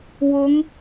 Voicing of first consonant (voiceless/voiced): voiced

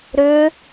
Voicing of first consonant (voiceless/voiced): voiced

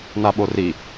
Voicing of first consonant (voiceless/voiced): voiced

